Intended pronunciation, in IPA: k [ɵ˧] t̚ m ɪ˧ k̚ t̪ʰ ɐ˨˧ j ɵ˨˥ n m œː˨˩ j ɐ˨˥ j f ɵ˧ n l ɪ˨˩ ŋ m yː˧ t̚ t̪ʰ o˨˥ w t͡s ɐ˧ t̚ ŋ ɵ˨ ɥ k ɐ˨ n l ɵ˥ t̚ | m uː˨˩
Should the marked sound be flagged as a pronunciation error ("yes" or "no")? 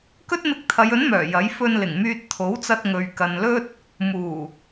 yes